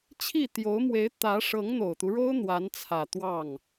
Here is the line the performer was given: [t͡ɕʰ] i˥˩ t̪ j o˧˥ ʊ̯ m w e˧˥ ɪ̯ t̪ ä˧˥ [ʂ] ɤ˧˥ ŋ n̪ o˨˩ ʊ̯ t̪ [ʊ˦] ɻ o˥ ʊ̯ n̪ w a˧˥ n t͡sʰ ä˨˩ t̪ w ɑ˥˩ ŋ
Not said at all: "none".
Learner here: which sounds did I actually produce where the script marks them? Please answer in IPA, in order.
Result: t͡ɕʰ, ʂ, u˦

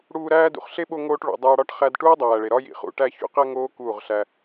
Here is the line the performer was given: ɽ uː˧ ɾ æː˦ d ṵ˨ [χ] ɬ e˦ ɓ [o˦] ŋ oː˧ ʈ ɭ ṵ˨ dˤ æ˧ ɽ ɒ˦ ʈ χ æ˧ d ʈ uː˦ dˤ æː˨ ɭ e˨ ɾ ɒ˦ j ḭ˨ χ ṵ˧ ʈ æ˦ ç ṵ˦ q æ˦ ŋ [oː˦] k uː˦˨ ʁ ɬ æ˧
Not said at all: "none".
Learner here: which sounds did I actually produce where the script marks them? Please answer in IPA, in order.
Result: χ, o˧, oː˦

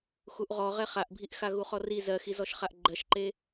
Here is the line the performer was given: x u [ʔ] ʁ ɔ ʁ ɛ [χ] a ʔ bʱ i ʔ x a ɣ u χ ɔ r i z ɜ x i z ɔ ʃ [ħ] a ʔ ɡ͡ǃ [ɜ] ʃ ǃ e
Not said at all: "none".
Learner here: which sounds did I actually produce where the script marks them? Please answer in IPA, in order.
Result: ʔ, χ, χ, ɜ

